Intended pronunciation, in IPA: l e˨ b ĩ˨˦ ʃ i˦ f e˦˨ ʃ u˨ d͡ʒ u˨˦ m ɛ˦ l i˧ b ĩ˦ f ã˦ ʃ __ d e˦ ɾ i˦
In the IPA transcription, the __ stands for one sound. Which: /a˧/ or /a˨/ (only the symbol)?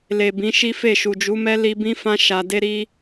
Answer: a˧